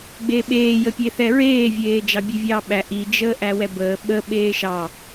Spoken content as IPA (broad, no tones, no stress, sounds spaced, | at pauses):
ɡ͡b e ɓ eː j ə pʲ e θ ɛ ɹ eː vʲ eː d͡ʒ ɑ bʲ e vʲ ɑː ɓ æ ʔ i d͡ʒ əː ʔ æ w ɛ b əː ɓ ə ɓ eː ʃ ɑ